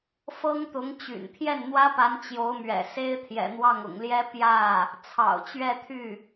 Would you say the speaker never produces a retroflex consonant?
yes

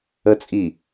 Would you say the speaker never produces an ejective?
no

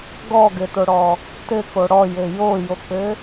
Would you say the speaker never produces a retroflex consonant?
no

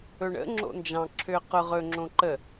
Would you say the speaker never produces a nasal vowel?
no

